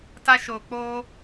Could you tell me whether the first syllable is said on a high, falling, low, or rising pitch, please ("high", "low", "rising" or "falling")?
high